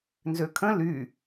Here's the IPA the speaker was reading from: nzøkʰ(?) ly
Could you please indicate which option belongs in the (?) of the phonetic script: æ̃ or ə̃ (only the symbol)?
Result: ə̃